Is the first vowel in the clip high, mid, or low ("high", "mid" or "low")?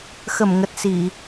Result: mid